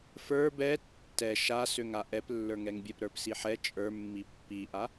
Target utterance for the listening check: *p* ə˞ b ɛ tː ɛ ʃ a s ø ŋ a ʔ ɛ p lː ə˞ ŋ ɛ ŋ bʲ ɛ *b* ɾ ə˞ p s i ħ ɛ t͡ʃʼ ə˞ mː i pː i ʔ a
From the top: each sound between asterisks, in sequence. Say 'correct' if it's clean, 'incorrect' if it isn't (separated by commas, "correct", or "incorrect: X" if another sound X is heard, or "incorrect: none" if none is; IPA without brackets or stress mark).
incorrect: f, incorrect: p